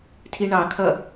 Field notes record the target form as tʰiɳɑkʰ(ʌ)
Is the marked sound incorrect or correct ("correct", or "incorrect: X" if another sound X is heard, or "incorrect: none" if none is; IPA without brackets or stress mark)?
correct